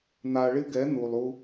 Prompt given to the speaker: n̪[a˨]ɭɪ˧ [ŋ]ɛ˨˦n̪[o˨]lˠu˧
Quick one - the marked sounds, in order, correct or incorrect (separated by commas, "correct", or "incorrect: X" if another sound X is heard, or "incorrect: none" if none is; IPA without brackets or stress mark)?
correct, incorrect: ɡ, incorrect: u˨